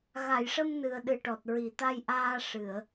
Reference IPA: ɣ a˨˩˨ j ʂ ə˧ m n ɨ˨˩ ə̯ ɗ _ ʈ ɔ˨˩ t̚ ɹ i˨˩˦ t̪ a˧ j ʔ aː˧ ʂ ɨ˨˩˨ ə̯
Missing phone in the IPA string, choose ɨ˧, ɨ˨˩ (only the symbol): ɨ˨˩